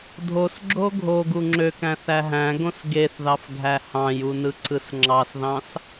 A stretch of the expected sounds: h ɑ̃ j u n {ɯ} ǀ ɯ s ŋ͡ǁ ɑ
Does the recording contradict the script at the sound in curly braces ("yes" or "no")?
no